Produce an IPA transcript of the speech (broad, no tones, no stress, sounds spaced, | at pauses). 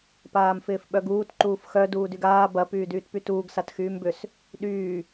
p aː m f ɪː f ɓ œ ɡ uː t ǃ uː f x œ d uː d y ɡ aː b ɐ p yː d yː t p y t uː ɡ s a t x yː m b ʏ s | ɗ yː